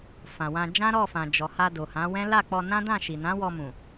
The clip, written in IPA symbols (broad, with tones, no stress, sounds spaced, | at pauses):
f ã˨ w ã˧ d͡ʒ ã˦ ɾ ɔ˦˨ f ã˨ d͡ʒ ɔ˨ h a˧ d o˨ h ã˨˦ w ɛ̃˦ l a˦˨ k͡p ɔ˧ n ã˦ d ã˦˨ ʃ i˨ n ã˨˦ w ɔ˧ m ũ˨